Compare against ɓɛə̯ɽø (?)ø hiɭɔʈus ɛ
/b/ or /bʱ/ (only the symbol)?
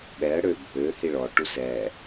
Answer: bʱ